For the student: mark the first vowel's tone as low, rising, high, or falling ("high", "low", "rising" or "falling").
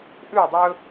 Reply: falling